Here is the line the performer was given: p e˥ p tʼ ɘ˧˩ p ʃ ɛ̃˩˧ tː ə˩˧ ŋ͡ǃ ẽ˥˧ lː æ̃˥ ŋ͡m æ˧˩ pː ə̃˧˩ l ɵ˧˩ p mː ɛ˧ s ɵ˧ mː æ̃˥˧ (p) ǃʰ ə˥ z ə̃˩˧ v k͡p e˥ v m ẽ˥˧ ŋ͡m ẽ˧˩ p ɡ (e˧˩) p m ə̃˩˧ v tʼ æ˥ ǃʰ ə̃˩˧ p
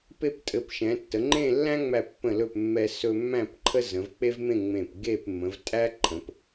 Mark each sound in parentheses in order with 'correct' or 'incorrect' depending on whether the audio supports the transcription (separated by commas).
correct, incorrect